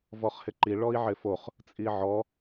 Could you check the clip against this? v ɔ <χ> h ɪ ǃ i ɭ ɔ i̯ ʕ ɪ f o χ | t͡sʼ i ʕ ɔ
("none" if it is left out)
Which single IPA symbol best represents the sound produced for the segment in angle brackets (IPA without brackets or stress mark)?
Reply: χ